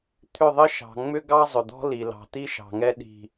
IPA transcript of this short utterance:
t̪ʰʏ˦˨ðˤɘ˦ ʃɑ̤˨ŋ͡mʏ˦ɡɑ˦ zˤʏ˨d̪ɔ̤˦li˨ lɑ̤˨t̪i˦ʃɑ̤˨ŋɛ˦ ɗi̤˦

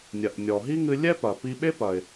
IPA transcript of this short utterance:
nʲɐ˩ʔnʲɔ˩ɦi˥ŋɨ˧ lʲɛ˥pɐ˩ pi˧ɓe˥pɐ˩ɪ̯

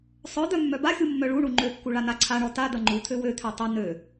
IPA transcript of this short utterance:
sˤœd̪œ mːœbaxʲu mːœɭuɳu ŋ͡ǃøkːu ɭanaǀʰaɳɔ ta d̪ɐŋ͡ǃut̪ʰø wøt̪ʰø tˤɐ nø

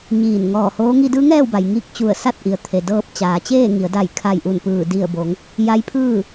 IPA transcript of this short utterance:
ɲiː˧˩nŋɔː˧˩hoː˧˥ ŋi˧dɯː˧˥ŋɛː˥˨wba˩j ŋi˧k̚ t͡ɕu˧˩ə̯sa˥˨t̚ʔi˩ə̯t̪ʰe˩ dɤː˧p̚t͡ɕaː˩˧t͡ɕeː˥˨ŋi˩˧ə̯ da˧˩jkʰa˧˩j ʔu˧˩npɯː˧˩ di˧˩ə̯bo˩˧ŋ | ja˧˥jpʰɯː˥˨

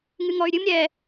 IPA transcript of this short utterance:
ŋɨŋɔy̯ɾʲɨm ɾʲɛ

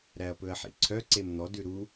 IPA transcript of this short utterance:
ɾæɐ̯pɵɐ̯ħḭǀʰœ ǀemn̪ɔ dʉɾu

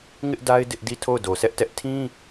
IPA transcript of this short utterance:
ŋɪ˦ʔda˦ɪ̯ dɪ˦ʔdi˦˨ tʰo˦˨ʊ̯do˨sɛ˦ʔtɛ˦ʔ tʰĩ˦

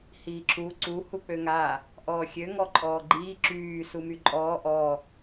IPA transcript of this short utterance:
hiːǁu ǀu huk͡pøŋa | ʔɔːxʲø ŋɔǃʼɔːɡ͡ǃiː ǁyː sumyǃʼɔː ʔɔ

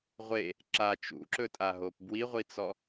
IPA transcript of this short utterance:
ʁʷe | ǁa t͡ʃṵǁɵtʼaɦop bwiʁʷit͡sɔ

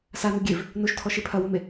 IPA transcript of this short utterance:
sanu ɡʲev | noʃtʰɔʃe pʰɐwome

